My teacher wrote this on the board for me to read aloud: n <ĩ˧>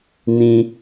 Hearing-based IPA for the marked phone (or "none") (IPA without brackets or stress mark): ĩ˧